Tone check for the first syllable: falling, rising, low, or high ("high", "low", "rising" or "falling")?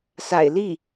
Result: low